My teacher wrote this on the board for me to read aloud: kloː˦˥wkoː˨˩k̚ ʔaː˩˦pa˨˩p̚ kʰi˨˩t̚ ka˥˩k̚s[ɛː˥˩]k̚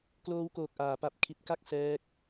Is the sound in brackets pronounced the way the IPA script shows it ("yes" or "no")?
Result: no